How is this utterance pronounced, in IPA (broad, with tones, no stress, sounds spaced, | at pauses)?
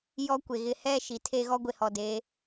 j ɔ˦ kʷ e˨ ɣ ɪ˨ h ɛ˦˨ ʃ i˨ tʰ e˦ ɣ ɔ˦ ɡʷ e˨ h ɔ˨ d e˨˦